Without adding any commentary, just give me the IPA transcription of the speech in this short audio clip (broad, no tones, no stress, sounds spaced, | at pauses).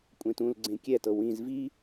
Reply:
kʷʼ ẽ t ũ l ɡ͡ǀ ẽ kʲ ɛ t ɤ w ĩ z v i